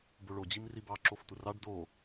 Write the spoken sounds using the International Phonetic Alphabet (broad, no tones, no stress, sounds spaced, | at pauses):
b o ɭ o d͡ʑ i m r i b ɑ ǁ o f tʷ ə r ɑ ɖ d o